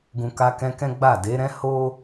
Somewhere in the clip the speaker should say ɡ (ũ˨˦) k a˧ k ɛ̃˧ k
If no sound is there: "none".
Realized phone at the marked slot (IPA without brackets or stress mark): ũ˨